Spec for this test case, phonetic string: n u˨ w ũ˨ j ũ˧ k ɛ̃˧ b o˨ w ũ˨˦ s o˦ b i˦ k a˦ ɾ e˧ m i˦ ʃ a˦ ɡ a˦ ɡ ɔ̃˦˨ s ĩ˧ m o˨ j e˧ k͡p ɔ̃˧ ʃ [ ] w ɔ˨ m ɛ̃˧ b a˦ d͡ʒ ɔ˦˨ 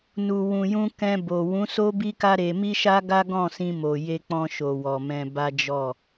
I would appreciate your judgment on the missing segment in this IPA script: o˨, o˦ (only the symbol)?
o˨